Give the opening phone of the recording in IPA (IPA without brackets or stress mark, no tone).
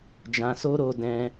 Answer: d͡ʒ